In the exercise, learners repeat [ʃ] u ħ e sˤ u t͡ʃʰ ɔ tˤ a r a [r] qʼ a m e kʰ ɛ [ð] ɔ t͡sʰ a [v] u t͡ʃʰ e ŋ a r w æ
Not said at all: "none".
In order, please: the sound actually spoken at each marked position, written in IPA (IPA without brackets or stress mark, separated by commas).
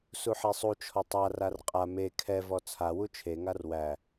s, r, v, w